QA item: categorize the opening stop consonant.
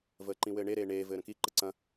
click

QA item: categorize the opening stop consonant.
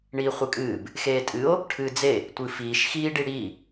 ejective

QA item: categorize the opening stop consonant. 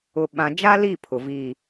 implosive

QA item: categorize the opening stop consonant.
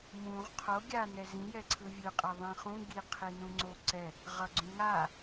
aspirated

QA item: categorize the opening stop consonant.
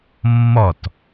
plain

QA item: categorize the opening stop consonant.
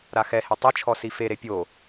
plain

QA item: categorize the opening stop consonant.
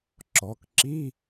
click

